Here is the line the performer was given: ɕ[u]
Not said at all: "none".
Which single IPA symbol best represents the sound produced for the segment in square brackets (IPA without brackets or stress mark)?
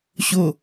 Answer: o